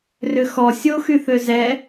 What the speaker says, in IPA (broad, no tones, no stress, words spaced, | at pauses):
rʏxɔ sʲoxy θøzɛ